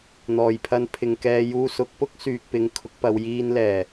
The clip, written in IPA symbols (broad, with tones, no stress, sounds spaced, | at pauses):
n̪ ɔː˨˩ j pʰ ɐ˧ n pʰ ɪ˨ ŋ k ɛː˧ j uː˧ s ʊ˨˥ k̚ p ʊ˥ k̚ s yː˨ k̚ p ɪ˨˧ ŋ kʰ ʊ˨˥ k̚ p ɐ˨˧ w j iː˧ n l ɛː˨˩